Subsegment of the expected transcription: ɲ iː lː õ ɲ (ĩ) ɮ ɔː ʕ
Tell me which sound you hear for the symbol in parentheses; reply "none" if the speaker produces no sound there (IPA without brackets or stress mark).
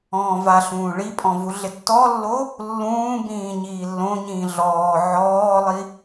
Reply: ĩː